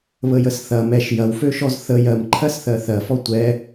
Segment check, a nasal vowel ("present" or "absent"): absent